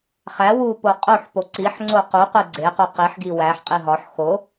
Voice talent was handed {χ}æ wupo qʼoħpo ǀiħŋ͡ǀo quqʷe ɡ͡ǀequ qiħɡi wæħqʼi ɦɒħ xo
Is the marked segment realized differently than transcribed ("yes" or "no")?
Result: no